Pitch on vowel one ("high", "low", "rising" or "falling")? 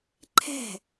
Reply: falling